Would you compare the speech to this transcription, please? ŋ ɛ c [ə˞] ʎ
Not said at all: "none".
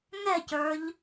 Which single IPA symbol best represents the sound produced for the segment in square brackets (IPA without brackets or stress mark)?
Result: ə˞